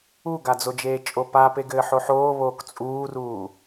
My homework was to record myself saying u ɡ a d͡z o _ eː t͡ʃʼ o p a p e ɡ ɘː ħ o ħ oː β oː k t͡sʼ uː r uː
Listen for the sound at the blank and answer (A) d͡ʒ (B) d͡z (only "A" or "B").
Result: A